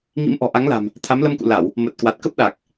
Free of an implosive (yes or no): no